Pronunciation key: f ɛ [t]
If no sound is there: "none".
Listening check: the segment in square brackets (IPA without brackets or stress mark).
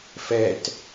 t